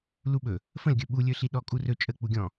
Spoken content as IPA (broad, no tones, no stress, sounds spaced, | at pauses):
l u ɓ ɵ | f ə̃ l ɡʲ ɵ ɓ u lʲ ɵ ɬ i ɗ ɔ kʼ u r ɵ t͡ʃʼ ə k͡p u ɡʲ ɔ̃